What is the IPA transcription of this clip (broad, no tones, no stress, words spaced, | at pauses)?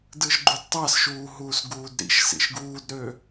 dɯʒɡ͡ǃudtˤɑsʃuː ɦuːsɡuːdɾḭʃsḭʃ ɡuːdɾø